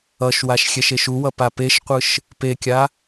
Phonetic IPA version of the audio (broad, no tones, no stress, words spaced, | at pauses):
ʌʃwaʃ xʲɛʃeʃuwʌ papeʃqʷɯʃ | pekʲa